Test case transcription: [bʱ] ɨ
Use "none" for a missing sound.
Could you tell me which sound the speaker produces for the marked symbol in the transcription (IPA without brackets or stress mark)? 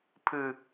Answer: pʰ